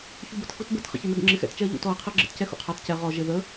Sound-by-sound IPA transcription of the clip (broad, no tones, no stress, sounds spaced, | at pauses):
ç u b ə t x u t b ə t χ ə̰ ç ɛ n ɜ ɡ ə̰ ŋ͡ǁ ɪ x ɛ̰ t t͡ʃ ɛ ɐ̯ ʎ ṵ t ɔ ɐ̯ qʰ ɜ ɡ͡ǁ ə̰ t c ɛ x ṵ qʰ ɑ t c ɛ ʁ ɔ ʒ ɪ ð ə